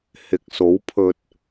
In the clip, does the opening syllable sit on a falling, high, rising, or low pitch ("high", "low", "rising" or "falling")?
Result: low